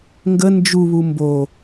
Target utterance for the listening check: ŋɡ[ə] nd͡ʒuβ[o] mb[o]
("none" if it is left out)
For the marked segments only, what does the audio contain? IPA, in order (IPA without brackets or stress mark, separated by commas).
ə, u, o